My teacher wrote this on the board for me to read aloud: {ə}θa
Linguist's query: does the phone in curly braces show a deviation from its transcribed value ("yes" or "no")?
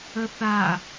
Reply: no